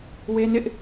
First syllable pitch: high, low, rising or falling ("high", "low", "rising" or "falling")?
high